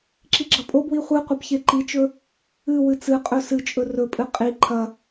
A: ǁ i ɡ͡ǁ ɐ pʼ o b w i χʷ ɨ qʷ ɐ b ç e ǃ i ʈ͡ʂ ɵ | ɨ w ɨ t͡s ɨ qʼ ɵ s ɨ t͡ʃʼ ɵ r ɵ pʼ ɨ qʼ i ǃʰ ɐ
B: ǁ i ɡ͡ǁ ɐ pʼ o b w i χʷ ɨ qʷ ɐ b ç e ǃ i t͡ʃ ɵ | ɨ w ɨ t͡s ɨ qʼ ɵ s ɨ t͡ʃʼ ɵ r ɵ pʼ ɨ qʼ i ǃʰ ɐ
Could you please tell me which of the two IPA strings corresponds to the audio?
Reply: B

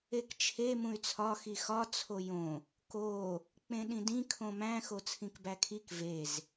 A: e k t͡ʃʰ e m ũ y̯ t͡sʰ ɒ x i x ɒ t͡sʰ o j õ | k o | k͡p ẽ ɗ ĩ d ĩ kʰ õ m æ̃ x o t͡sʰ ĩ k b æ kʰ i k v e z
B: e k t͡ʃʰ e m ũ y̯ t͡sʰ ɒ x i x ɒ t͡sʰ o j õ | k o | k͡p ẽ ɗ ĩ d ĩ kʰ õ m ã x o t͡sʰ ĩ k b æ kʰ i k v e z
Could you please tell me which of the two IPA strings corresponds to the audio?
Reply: A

